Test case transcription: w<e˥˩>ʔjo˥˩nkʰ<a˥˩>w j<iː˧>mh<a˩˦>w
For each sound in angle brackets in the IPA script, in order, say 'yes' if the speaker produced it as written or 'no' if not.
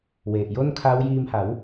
no, no, yes, yes

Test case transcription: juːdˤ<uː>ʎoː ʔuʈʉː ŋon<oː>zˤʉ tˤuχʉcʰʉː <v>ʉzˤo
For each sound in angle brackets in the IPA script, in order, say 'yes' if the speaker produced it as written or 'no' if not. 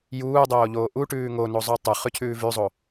no, no, yes

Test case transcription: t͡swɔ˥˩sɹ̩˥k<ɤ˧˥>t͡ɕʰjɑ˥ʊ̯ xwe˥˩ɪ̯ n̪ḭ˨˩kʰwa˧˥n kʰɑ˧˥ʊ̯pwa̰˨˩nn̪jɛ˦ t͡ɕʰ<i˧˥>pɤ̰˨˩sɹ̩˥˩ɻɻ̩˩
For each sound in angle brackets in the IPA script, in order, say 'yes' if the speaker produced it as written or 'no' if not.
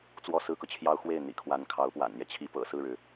no, yes

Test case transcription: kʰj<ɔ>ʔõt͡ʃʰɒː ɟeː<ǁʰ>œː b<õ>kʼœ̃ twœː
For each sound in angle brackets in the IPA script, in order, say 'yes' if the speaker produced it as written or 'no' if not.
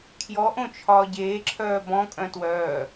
yes, yes, no

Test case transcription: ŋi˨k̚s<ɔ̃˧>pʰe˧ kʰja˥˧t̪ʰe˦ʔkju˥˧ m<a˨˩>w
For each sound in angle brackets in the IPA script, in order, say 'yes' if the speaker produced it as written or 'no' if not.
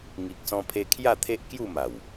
yes, yes

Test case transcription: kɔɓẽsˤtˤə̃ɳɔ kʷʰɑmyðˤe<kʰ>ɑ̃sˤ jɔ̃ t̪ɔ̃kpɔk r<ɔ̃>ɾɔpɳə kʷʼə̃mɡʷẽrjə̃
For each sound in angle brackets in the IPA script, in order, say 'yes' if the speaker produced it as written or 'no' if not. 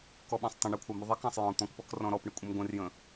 no, yes

